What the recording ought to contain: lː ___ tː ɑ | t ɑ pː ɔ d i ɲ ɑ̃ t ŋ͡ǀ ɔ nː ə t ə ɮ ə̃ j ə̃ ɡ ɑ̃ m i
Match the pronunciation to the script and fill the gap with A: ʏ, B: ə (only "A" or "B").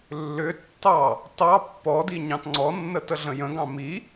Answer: A